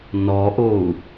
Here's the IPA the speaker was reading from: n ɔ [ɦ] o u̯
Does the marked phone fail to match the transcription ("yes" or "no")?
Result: yes